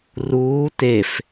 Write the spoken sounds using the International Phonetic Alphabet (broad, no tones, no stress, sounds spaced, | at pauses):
r uː t e f